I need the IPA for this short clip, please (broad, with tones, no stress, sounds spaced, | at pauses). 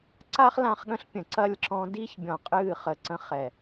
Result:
ǀ a˦ χ l ã˧ χ ɠ ə̃˧ ɬ pʲ ə̃ː˨ ǀ ɐ˦˨ lʲ ǁ ɔ̃˧ d i˧ ç bʲ ɔ̃˨ qʼ ɨː˦˨ χ ə˨ ǀ ə̃˧ χ ɛ˨